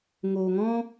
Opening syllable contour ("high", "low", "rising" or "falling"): low